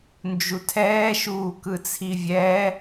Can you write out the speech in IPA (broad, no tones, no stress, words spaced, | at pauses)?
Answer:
nd͡ʒutʰɛː ʃuːkɯt͡sʰivʲɛ